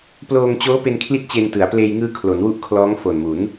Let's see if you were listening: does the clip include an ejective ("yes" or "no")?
no